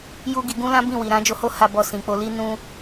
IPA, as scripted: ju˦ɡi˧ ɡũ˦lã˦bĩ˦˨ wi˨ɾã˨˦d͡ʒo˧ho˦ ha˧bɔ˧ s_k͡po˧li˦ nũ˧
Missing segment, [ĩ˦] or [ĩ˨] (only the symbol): ĩ˨